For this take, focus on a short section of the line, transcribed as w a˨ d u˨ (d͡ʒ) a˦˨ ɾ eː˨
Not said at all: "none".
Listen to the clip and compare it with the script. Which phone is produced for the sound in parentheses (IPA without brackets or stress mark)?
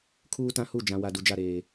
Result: d͡ʒ